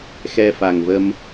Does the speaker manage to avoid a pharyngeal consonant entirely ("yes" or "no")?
yes